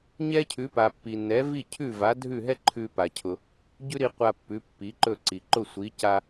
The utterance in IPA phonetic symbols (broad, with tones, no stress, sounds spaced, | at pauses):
ɲ ɛ˥ cʰ ʉ˩˥ p a˩ pː i˩ nː ɛ˩˥ v i˥˩ cʰ ʉ˥˩ v a˩˥ dʱ ʉ˥˩ ɦ ɛ˥ ǃʰ ʉ˧ p a˩ cʰ ʊ˩ | ɟ ʉ˥ ɾ i˧ qʷ a˧ pː ʉ˩˥ pː i˩˥ ǃ ɵ˥˩ ǀ i˩ ǃ ʊ˥˩ sʷ i˩˥ c a˧